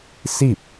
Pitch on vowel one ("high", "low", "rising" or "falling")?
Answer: falling